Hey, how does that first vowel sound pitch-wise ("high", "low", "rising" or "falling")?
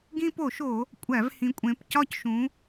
high